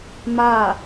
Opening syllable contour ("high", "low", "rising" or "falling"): falling